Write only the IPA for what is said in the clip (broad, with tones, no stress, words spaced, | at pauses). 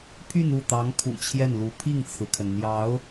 pʰy˥˧nu˥˩t̪ɑ˧˥ŋ kʰṵ˨˩t͡ɕʰjɛ˥˩nlu˧˥ pʰi˥˩ŋt͡sʰɹ̩˩kʰə˩n n̪jɑ˧˥ʊ̯